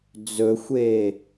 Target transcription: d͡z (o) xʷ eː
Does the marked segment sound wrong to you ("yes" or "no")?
yes